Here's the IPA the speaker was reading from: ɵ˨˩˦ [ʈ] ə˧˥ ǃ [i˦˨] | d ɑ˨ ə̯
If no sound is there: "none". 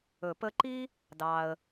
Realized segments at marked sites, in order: p, i˥

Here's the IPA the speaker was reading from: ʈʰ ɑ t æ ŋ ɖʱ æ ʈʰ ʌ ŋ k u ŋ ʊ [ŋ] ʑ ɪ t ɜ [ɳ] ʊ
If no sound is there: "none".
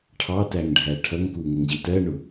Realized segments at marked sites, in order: ŋ, ɳ

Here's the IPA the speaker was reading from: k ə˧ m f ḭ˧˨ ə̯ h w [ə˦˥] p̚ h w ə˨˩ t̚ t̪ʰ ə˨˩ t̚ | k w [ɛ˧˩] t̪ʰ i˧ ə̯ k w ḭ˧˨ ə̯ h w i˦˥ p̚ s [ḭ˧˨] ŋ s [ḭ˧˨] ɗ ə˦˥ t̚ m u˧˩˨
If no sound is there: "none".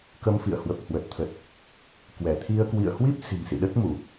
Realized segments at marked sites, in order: ə˨˩, ɛ˧˩, i̤˨˩, ḭ˧˨

